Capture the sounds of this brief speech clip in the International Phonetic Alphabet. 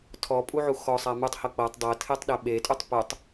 tʰ ɔ pʼ u ʕ u x ɔ sˤ a m u tˤ h ɤ k͡p ɤ tˤ dˤ ɤ tʰ e tˤ ɗ ɛ ɓ e tʼ u tˤ p o tˤ

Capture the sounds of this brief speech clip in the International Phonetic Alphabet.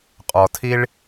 qʼ ɔ˨ tʰ i˦ ɭ

